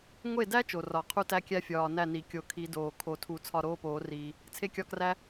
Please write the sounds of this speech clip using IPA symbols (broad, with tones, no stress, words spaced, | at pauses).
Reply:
ŋʷe˥˩dæ˥ t͡ʃo˨˩rɒ˨˩˦ qʰu˥tæ˥kʲæ˥fʲɒː˨˩ næ˥˩ni˨˩ kʲo˨˩˦ kʰi˨˩˦ doː˨˩ kʰo˨˩˦tʰu˨˩˦t͡sʰɒ˥˩ ɾoː˥poː˨˩˦riː˨˩ | t͡sʰe˥kʲɒ˥˩kræ˥